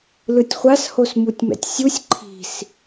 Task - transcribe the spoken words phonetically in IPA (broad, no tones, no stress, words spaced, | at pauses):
lɯtʲχʷas hosmutʲmɛ̰tʲsʲusʲ ǃʰi̤s